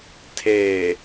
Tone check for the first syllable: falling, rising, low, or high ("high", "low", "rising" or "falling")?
low